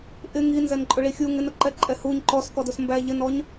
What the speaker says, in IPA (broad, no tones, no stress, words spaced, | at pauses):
ʔɪ ŋinzɛn ǃʼʊɭixʲu ŋɪnʊ ǃɛǃʼɛhuɲ ǃɔskɔdʊs mbæʎɪnɔɲ